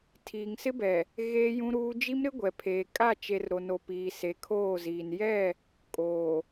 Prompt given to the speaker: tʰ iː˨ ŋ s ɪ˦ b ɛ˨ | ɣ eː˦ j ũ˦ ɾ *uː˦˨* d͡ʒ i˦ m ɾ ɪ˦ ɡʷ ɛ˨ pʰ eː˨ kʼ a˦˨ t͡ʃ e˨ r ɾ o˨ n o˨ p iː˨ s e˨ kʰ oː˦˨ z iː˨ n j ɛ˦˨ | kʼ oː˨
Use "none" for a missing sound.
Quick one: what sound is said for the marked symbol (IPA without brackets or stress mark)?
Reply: uː˦